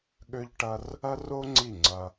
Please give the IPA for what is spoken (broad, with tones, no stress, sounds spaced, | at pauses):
ɠ ø˦ ʎ ʈ ɐ˦ r | ɐ˦ r o˦ ŋ͡ǀ i˦˨ ŋ͡ǀ ɐ˧